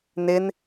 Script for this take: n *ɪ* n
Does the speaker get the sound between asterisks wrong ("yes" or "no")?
no